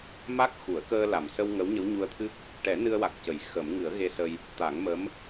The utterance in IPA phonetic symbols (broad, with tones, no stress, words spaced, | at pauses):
ma˦˥k̚xu˨˩˦ə̯ kəː˧la˨˩msə˧w ŋə˧˥wɲə˧˥w ɲu˧ə̯t̪ʰɨ˦˥k̚ | ʈɛ˨˩˦ nɨ˧ə̯wa˨˩k̚cə˨˩˨j xə˨˩˦m ŋɨ˨˩˦ə̯ɣe˧sə˧j | t̪a˨˩˦ŋmə˧˥m